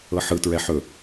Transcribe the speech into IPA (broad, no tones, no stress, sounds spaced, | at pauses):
ɤ ħ ɯ t ɹ ɛ ħ ɵ